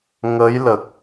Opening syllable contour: rising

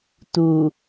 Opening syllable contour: low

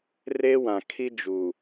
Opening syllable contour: high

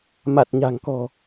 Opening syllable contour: low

